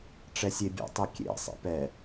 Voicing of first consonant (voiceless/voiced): voiceless